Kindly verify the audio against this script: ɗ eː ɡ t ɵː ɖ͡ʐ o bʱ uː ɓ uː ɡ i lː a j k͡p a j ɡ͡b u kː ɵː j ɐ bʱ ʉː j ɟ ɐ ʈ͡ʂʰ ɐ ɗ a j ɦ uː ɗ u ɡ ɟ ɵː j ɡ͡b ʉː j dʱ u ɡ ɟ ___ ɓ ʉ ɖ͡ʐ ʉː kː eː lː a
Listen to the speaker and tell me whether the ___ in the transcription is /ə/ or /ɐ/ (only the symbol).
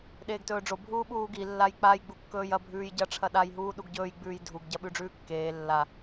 ɐ